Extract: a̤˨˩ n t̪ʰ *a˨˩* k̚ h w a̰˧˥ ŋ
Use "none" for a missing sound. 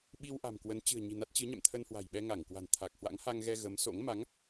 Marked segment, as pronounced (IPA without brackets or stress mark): a˨˩